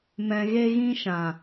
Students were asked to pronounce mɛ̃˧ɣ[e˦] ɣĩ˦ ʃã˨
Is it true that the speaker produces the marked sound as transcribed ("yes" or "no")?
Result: yes